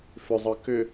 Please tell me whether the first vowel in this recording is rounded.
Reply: yes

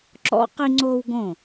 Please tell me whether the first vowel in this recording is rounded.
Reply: yes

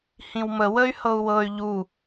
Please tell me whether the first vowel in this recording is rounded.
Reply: no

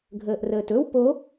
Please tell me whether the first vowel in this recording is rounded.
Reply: no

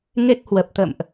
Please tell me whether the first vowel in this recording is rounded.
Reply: no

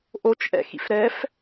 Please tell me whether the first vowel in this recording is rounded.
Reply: yes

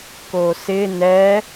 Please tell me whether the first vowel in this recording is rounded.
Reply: yes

